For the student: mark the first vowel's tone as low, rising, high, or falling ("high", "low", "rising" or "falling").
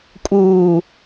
low